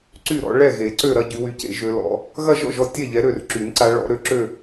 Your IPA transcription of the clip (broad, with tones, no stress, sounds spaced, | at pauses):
ǀ y˥˩ ɾ ɔ̰˨˦ ɭ ɛ˥˩ ɣ e˨˩˦ ǀ ø˥˩ ɾ ɐ˥˧ ɟ y˨˦ w y˨˦ c ḛ˨˩˦ ʒ ø˨˦ l ɔ̰˨˦ | ɣ ɐ˥˧ ʒ ɔ̰˥˩ ʒ ɔ˥˩ tʲ ɛ˥˩ ʎ ɛ˨˦ ɾ ø˥˩ r ǁ y˨˩˦ n ǀ a˨˦ ɭ ɔ̰˨˦ ɾ ø˥˩ ǁ ø˥˧